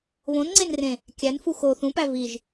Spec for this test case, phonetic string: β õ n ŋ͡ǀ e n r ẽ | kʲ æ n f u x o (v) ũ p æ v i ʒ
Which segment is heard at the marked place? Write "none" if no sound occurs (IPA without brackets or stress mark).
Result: θ